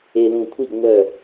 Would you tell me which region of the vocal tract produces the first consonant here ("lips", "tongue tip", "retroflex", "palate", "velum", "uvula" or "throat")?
tongue tip